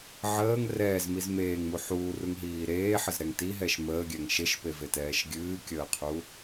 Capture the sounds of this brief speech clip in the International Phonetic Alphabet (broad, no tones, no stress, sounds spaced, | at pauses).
ʕ əː ŋ r ɛː z m i z m eː ŋ m u ħ uː r u ŋ ɦ iː ɾ eː ħ ə z ɾ ɛ ŋ t i ɦ ɛ ʃ m əː ɡʲ ɛ ŋ ʃ e ʃ p e v e t ɛː ʃ ɡʲ ɨː kʲ əː qʰ u